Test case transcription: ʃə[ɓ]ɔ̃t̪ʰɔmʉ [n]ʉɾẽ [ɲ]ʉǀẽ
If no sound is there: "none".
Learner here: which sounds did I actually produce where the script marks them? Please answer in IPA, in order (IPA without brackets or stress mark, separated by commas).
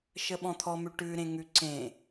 ɓ, ʈ, ŋ